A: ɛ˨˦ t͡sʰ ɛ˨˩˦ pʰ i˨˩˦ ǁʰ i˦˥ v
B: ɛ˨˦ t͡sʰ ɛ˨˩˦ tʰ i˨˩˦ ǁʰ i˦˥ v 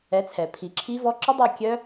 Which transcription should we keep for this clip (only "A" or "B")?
A